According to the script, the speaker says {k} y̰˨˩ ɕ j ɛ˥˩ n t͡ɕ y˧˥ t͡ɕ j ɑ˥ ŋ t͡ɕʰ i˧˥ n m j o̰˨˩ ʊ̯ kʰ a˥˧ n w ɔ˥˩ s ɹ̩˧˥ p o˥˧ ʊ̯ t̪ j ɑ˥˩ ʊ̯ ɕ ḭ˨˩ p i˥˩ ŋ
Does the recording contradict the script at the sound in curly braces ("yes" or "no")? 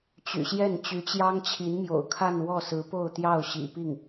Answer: yes